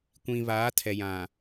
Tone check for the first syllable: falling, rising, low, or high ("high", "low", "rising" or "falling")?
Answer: low